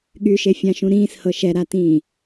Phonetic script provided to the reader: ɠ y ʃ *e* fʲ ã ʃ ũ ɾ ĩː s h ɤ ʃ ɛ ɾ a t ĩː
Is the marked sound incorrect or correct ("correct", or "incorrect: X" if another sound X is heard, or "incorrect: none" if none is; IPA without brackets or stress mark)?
correct